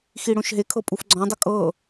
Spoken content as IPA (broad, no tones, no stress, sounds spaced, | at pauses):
x i ɽ õ ʃ ɦ e kʰ ɤ pʼ u f ɡ͡ǀ ɔ̃ dˤ ʊ kʼ ɤ